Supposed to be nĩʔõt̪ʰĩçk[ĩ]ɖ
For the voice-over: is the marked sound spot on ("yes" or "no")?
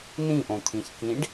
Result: yes